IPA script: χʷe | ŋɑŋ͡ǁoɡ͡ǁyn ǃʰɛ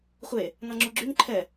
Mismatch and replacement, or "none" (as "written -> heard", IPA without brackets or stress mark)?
none